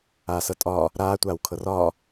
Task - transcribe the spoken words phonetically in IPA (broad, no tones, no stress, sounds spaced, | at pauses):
aː s ɤ tʼ ɒː | ɾ aː tʷ aː w kʰ ɤ r ɒː